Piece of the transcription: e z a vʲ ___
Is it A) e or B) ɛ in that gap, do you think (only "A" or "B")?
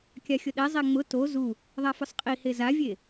A